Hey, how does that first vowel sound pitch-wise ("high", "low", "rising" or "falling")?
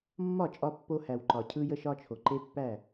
falling